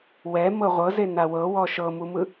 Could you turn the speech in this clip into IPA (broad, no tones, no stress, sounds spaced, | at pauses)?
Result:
w ɛ m ɤ ʁʷ ɤ z e n a w ɤ w ɔ ʃ ɤ m u m ɯ